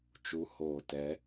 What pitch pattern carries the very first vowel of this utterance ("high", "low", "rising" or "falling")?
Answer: rising